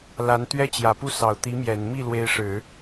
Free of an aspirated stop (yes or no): yes